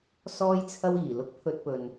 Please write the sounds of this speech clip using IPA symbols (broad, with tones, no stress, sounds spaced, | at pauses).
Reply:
s ɔː˥ j t͡sʰ ɐ˥ w iː˨˩ l ʊ˥ k̚ pʰ ɵ˥ t̚ p ɵ˧ n